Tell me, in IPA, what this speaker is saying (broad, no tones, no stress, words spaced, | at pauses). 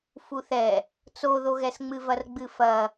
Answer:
fuθɛ | t͡soðoɣɛsŋ͡mɨ vɐrɡ͡bɨfɐ